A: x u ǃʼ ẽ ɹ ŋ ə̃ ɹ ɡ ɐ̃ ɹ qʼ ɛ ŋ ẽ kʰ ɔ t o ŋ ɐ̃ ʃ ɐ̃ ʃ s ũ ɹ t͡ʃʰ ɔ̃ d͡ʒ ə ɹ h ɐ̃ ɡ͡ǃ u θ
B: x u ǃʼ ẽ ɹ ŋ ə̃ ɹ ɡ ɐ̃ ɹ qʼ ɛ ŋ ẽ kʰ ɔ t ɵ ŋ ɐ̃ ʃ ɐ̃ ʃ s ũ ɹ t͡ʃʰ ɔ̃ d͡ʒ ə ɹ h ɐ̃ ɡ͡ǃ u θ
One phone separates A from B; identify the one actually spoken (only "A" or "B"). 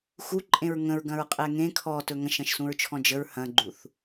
B